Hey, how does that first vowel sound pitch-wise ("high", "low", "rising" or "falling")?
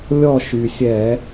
falling